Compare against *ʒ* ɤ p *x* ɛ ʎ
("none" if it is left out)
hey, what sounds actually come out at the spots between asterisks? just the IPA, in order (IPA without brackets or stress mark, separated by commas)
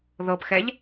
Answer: ð, x